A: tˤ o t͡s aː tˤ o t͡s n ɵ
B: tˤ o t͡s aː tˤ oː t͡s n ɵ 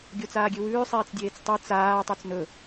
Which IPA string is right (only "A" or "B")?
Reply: A